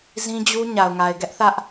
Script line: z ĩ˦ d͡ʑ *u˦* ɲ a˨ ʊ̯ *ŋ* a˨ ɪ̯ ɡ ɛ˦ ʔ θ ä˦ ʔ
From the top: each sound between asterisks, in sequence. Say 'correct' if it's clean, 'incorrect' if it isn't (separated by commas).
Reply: correct, correct